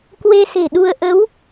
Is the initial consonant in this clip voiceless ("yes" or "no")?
yes